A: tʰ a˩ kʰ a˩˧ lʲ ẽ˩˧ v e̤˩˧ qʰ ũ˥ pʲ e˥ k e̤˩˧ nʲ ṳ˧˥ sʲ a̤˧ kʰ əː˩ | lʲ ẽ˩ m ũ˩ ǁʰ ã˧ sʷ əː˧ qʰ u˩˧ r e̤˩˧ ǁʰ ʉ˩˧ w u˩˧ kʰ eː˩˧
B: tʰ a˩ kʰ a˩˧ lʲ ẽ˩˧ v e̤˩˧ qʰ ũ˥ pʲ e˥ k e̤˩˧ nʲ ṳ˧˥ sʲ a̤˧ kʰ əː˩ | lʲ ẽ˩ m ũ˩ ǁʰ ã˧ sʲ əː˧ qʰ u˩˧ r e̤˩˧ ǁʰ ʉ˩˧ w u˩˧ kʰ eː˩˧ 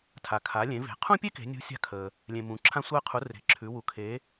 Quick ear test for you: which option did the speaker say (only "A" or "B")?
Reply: A